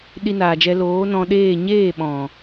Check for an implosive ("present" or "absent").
present